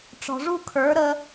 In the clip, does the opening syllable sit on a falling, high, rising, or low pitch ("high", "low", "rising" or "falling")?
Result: low